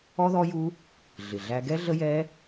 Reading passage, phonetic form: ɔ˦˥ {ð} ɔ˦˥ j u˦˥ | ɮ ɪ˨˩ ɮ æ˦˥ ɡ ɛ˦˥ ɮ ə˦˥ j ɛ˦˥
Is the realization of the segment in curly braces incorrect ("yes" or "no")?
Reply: no